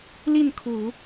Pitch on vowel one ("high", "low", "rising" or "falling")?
falling